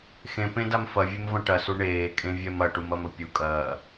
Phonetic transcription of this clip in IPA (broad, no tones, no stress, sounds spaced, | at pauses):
x ẽ p ẽ d a m f ɐ vʲ e m v ɐ̃ ʈ ɐ s u ɳ eː kʼ ẽ vʲ ɛ m ɐ ʈ u m ɐ m ə pʲ u kʼ ɐː